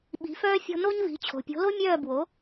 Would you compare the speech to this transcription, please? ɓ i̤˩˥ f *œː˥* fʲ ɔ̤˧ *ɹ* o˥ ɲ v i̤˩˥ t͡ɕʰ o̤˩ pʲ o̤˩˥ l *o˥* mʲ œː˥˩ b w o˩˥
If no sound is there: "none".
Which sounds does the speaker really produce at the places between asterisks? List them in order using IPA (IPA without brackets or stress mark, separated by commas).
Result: œː˥, n, o˥